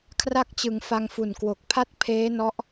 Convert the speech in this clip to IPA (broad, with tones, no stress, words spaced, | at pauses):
kʰra˦˥k̚t͡ɕɯ˩˦ŋ fa˧ŋfu˨˩nkwo˨˩k̚ pʰa˥˩t̚ pʰeː˦˥nɔ˦˥ʔ